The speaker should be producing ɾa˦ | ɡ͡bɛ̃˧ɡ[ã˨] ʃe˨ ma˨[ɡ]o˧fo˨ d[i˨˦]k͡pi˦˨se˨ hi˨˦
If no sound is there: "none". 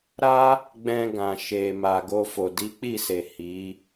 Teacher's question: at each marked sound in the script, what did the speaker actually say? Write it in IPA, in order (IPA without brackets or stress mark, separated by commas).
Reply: ã˨, ɡ, i˨˦